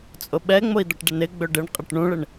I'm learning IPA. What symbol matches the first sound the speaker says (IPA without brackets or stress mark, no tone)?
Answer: t͡sʼ